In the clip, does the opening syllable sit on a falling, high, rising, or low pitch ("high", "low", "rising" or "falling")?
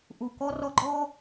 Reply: low